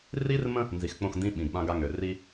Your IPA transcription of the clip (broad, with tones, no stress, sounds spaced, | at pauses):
r i˦ r m ə̃˦ | n z i˨ x k͡p õ˦˨ x n d ĩ˦ ɓ ĩ˨ ɡ ɓ ã˦ ɡ a˦ ŋ ø˨ r i˦